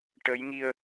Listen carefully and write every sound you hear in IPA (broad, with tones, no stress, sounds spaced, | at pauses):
ʈ ə˧˥ j ŋ i˧ ə̯